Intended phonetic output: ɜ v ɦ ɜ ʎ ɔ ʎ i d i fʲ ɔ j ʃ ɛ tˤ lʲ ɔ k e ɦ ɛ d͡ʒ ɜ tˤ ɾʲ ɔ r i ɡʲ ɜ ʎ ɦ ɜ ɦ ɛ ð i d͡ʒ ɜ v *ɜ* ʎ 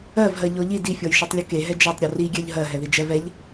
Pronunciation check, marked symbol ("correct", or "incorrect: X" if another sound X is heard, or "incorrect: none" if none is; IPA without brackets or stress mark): incorrect: ɛ